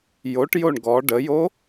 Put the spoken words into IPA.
joʈ joɳɡɔ ɖəjo

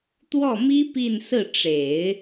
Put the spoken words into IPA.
t̪wɔ˥˩mi˥ pi˥˧nsɹ̩˥˩ʈ͡ʂe˨˩˦ɪ̯

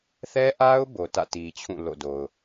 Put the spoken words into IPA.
θɛ˦ʔa˦ʊ̯ bo˨tä̰˦˨ti˨t͡ɕʰũ˦˨ lo̰˦˨do˨ʊ̯

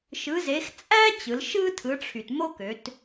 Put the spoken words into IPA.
ʃɯ˩˧ze˩˧x t͡sʼæ˥ t͡ɕɯ˩˧lʃɯ˥ tʰɯ˩˧ʈ͡ʂʰy˩t mo˥kø˩˧t

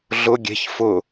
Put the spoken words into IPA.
ɮʊ ɡʲe̤ç fʊ

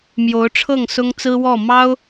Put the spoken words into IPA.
mjo˧˥ʊ̯ʈ͡ʂʰɤ˥˩ŋ sʊ˥ŋt͡sɹ̩˥wɔ˥˩ mɑ˥ʊ̯

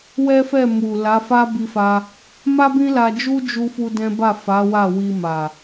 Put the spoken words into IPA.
wɛ˦fɛ˦˨mu˨ la˨˦fa˦ bi˧fa˧ | ma˦bĩ˦la˧d͡ʒu˦ d͡ʒu˦fu˦dɛ̃˦ ba˦˨fa˨˦ wa˦˨wi˧ma˨

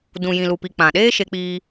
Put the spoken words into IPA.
dũ˨jĩ˨lu˨pi˨ k͡pã˨ɗeː˦ ʃe˧k͡piː˧

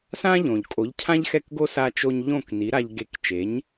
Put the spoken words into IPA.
sã˥ʎõ˩ʎ kʼo˩˥ʎcʰã˥ʎxɛ˥˩kɡo˥ sa˧t͡ʃo˧ɲ ʎõ˥˩kni˩˥ɾa˧ʎ ɡe˧k t͡ʃe˩˥ɲ

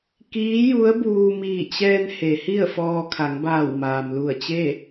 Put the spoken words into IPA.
kiː˧˥ju˧˥ə̯buː˧ miː˧˩t͡ɕɛː˧n he˩˧hi˥˨ə̯fɔː˧ kʰa˩˧ŋbaː˧˩wmaː˩m lu˧˩ə̯t͡ɕe˥˨

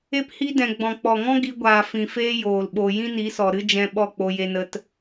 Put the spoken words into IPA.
e˦phi˦dɛ̃˨ ɡ͡bɔ̃˨k͡pɔ˨ŋɔ̃˦ ɡi˧ɡʷaː˨fĩ˨feː˦ joː˨lɓo˧ jĩ˦ni˨˦sɔ˨ ɾɨ˦d͡ʒɛ̃˧ ɓɔ˦˨k͡po˧je˧nə˧t

